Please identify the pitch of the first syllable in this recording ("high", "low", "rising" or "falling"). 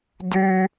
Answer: high